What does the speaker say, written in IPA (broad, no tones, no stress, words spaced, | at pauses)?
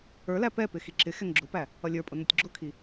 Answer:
ə˞læ pɛpɪ xiǁɪxɛŋ ɡ͡ǁʊpæ | ʌlʲə˞pʼʊ nʊtʲɡ͡ǁʊkʰi